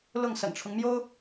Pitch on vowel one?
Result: falling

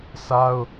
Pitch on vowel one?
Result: high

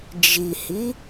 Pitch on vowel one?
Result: low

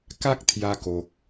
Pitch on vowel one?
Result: high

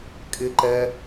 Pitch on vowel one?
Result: low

